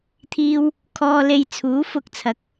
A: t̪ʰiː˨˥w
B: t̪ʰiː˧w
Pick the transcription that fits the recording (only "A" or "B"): B